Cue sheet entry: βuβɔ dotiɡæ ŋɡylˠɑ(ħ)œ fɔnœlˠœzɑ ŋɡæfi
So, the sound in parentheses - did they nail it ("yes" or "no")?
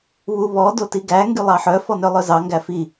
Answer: yes